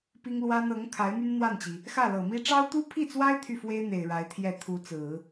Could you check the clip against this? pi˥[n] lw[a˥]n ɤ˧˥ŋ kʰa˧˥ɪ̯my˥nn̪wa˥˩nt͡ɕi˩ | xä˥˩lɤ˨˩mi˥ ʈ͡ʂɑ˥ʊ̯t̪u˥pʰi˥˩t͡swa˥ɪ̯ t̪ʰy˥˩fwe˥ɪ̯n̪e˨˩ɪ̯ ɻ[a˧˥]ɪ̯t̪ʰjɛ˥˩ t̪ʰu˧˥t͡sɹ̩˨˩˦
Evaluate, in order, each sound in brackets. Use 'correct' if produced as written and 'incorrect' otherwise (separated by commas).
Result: incorrect, correct, correct